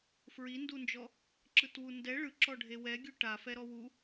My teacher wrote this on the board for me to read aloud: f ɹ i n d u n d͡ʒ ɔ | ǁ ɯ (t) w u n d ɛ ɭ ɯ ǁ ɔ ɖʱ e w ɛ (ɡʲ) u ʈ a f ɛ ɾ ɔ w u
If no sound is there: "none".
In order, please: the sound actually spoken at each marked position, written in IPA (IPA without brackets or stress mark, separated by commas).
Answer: t, ɡʲ